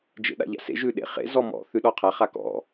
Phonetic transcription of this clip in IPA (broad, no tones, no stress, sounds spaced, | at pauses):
d͡ʒ ḛ ɗ a̰ ʎ a̰ s ḛ ʒ ʉ ɗ ḛ χ ḛ z ɔ m ɔ̰ θ ʉ ɗ ɔ qʰ a χ a k ɔ̰